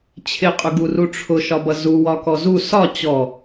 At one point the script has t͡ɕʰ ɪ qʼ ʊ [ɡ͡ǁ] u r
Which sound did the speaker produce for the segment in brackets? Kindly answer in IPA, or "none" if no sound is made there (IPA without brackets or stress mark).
ɡ